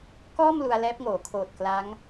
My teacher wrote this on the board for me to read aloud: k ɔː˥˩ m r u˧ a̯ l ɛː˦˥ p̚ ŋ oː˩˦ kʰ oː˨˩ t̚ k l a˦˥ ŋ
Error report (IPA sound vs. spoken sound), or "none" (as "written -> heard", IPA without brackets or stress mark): r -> l